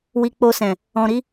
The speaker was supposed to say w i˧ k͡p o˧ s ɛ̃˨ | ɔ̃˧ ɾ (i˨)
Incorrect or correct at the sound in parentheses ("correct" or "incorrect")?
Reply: incorrect